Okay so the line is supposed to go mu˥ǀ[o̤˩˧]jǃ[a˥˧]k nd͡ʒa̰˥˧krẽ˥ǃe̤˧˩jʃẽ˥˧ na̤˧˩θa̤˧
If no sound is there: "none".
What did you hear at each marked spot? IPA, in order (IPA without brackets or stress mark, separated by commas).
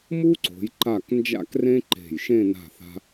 o̤˩˧, a˧˩